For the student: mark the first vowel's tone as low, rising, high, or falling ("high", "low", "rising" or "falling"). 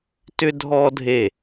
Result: high